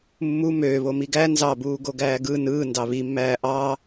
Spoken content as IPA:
mːu møːβo miɡæ nzɑbuː ɡoɡæːɡɯ nɯː ndɑβimːæː ʔɑ

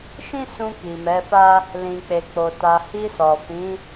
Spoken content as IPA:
ʃĩ˦sũ˧ ki˨mɛ˨˦fa˦ | lĩ˨k͡pe˨k͡po˨ ta˨hi˧ sɔ˨fĩ˨˦

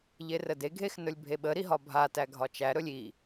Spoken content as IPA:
ʎerədeɡʱex nɵlʲbʱeɓəɾi ɦɒbʱatæ ɡʱɒt͡ʃæɾɵlʲ i

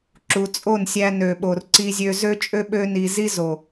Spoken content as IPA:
ǁu˨t͡sʼo˦˨nsʲæ˧ nø˨ɓo˨r ǀi˦zʲø˦ zø˦t͡ʃʼø˦ɓø˦ ni˧ zi˦ zo˨

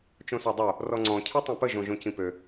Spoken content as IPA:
t͡ʃõsɔdˤo | rɔŋ͡ǀɔ̃ cʰetˤẽpə ʒõʒõcĩpø

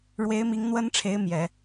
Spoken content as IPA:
ɻwe˧˥ɪ̯mi˧˥ŋn̪wə˥nʈ͡ʂʰe˧˥ɪ̯ mjɛ˨˩˦

